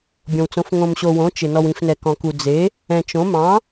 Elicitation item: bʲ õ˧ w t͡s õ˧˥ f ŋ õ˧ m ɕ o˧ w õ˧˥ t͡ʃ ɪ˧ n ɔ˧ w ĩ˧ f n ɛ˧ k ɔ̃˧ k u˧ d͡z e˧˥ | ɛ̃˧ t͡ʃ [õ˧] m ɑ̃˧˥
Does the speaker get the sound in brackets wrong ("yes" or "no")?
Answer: yes